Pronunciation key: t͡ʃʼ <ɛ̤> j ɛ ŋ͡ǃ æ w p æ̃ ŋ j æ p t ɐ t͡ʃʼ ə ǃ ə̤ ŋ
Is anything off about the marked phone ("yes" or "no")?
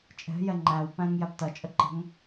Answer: no